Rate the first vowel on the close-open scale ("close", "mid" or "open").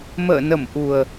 mid